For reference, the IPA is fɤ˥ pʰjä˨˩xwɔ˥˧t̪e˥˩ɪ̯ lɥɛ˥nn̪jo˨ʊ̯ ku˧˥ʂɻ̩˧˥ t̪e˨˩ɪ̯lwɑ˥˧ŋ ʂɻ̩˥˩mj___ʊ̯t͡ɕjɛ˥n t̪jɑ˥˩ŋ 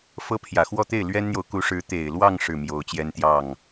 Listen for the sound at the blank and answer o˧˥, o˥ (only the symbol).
o˧˥